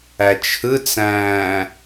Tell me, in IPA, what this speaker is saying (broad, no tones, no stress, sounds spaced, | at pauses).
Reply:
æ t͡ʃʰ ɯ t͡s æ̃ː